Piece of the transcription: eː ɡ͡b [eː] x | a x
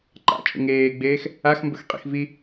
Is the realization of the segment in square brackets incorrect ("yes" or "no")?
no